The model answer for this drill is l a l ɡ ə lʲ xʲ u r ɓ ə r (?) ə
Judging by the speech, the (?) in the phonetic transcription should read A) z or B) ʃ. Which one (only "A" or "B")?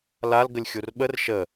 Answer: B